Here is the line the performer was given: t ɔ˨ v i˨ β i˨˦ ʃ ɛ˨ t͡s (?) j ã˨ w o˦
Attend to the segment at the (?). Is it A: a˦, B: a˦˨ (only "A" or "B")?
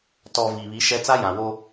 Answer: A